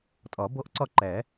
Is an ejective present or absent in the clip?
present